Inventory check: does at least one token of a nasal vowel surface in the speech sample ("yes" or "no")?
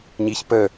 no